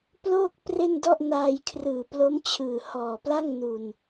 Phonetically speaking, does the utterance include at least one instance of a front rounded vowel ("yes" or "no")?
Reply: no